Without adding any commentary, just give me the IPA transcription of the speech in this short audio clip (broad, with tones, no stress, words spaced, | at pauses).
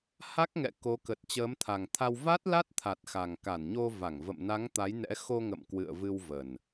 ha˦˥k̚ŋɛ̰˧˨ ko˨˦ kə˨˩t̚t͡ɕəː˨˦mt̪ʰa˨˩ŋt̪ʰa˧w va˦˥t̚la˦˥t̚t̪ʰa˨˩t̚ xa˨˩ŋka˧˩nɲo˧va˧˩ŋ və̰˧˨mna˨˦ŋt̪a˨˦jnɛ̰˧˥ xo˧ŋə̰˧˨m kwɨ̰˧˨ə̯vɨ˧wvə˨˩n